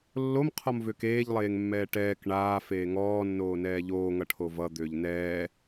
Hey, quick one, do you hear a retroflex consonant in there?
yes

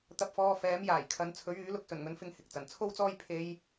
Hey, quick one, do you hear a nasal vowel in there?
no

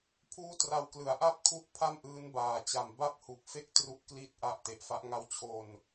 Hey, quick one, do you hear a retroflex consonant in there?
no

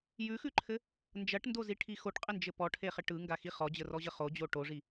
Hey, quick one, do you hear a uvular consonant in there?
yes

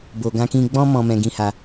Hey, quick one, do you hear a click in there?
no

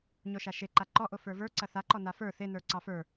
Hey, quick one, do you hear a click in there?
yes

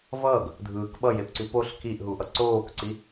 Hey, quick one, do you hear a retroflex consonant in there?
no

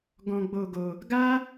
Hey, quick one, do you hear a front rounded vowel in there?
no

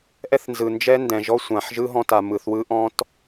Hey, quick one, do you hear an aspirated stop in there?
no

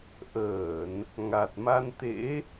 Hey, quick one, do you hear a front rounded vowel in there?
no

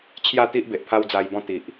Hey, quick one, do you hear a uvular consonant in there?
no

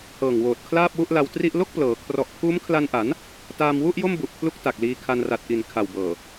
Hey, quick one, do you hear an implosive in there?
no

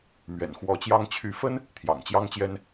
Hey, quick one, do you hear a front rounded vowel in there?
yes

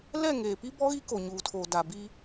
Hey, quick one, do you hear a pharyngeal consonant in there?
no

